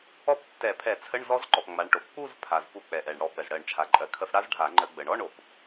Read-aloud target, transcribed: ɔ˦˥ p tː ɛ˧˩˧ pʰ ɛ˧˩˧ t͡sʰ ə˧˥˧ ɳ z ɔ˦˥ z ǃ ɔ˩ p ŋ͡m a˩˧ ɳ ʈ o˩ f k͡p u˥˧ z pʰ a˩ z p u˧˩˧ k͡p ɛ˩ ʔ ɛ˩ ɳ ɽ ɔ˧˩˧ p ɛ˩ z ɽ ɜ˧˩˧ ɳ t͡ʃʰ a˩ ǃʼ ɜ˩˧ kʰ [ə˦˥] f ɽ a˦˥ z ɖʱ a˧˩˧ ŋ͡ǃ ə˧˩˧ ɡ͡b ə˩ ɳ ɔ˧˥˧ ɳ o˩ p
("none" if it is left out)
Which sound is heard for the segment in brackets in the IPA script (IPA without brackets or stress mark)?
ə˧˩˧